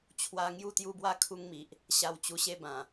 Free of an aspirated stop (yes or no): no